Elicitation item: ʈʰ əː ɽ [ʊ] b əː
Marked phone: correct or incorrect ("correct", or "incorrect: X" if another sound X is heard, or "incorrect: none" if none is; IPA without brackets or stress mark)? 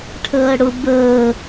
correct